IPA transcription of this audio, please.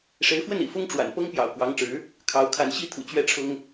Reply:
ʂ e˧˥ ɪ̯ f w ə˥˩ n ḭ˨˩ f ʊ˥ ŋ ʈ͡ʂ w a̰˨˩ n p ɤ˥ ŋ p j ɑ̰˨˩ ʊ̯ k w ɑ˧˥ ŋ ʈ͡ʂ ɻ̩˧˥ | kʰ ɑ˧˥ ʊ̯ kʰ a˧˥ n ɕ i˥ t̪ʰ ṵ˨˩ t͡ɕ ɥ ɛ˥˩ ʈ͡ʂʰ ʊ˥ ŋ

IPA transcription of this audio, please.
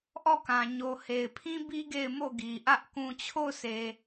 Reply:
ʔ ɔ˦˨ k ã˨ ɲ o˨ h e˨ ɪ̯ pʰ ĩ˦ b i˦ ɡ e˦˨ ɪ̯ m o˦˨ ɡ i˨ ʔ ä˦ ʔ k ũ˨ t͡ɕʰ o˦˨ ʊ̯ sʰ e˨

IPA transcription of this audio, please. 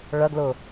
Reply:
ɭ ɐ ɡ l ʊ

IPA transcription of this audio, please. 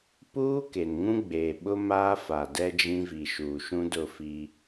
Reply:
p uː˦ k e˨ n ŋ ũ˦ ɡ͡b eː˨ ɓ ʊ˦ m aː˦ f a˨ d ɛ˦ d͡ʒ ĩ˦ v i˨ ʃ uː˨ ʃ ũ˦ d ʊ˦˨ f i˦

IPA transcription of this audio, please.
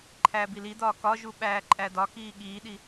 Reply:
ǃʰ æː b i l i d̪ ɒː k ɒ ʒ u ɓ æː ǃʼ æ d ɒ k iː ɠ iː ɗ i

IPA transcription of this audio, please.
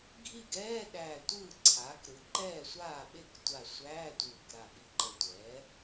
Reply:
ɡʱ i˥˩ ɡ ɛː˧˥˧ ɗ æː˧˩ tʷ ɯː˥˩ ǀʰ aː˩˥ k ɾ ɯ˩˥ ǃ ɛː˥˩ sʷ aː˥˩ ɓ e˥˩ k tʷ a˧˩ sʷ æː˧˥˧ tʷ ɯː˧˩ k ɾ a˧˩ ɓ i˧˩ ǃ ə˧˩ tʷ ɛː˩˥

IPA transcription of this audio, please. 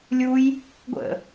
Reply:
lʲ u j | ɡʷ ə̰

